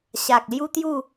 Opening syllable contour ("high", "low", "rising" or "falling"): low